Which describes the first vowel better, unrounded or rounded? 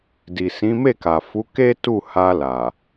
unrounded